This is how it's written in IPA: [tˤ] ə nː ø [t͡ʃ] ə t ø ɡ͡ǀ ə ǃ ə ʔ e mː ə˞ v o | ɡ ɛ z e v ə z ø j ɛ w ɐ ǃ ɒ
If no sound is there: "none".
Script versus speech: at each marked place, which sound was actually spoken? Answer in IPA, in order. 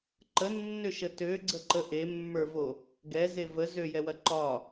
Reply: ǃ, ʃ

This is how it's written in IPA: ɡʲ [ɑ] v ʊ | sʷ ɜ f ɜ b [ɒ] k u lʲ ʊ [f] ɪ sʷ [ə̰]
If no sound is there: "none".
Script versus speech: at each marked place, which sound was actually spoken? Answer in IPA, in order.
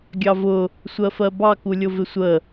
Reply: ɑ, ɑ, v, ə

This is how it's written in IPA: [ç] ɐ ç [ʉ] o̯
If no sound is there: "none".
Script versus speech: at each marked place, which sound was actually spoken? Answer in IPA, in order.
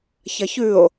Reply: ç, ʉ

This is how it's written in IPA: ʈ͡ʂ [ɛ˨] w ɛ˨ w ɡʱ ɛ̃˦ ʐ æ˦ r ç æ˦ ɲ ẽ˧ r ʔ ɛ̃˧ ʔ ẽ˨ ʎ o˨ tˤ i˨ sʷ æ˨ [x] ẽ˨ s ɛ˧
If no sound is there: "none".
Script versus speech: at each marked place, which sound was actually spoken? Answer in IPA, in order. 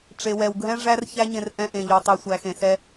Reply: e˨, x

